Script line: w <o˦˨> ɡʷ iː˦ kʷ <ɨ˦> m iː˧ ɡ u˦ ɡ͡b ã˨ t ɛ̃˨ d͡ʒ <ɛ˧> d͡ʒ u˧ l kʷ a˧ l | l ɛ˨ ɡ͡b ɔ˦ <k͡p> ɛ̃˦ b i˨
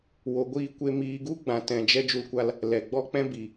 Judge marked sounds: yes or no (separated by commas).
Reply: no, no, yes, yes